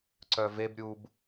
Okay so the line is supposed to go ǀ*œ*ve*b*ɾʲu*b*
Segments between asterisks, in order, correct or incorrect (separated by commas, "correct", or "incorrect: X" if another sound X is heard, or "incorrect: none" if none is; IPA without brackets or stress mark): correct, correct, correct